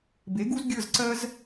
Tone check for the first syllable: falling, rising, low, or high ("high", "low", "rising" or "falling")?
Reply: rising